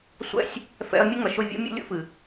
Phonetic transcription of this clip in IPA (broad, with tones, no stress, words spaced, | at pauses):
sʷɛ̰˦sʲ | fɛ̰˧ɐ̯ mʲɨ˦ŋʌ˨ʃʊ˦˨ vʲṵ˦ mʲṵ˦ lʲṵ˦fɨ˨